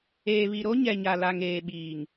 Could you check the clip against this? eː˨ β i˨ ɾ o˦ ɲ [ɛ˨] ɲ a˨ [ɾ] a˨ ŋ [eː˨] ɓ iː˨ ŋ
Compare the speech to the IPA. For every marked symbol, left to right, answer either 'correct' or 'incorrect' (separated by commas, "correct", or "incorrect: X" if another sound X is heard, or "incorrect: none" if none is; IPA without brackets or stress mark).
correct, incorrect: l, correct